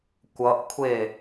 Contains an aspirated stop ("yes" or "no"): yes